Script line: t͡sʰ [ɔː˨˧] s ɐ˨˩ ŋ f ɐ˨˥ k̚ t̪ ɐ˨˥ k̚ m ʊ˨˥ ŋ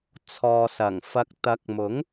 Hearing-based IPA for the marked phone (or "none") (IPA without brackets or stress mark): ɔː˨